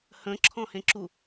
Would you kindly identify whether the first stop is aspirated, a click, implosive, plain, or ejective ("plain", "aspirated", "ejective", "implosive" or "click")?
click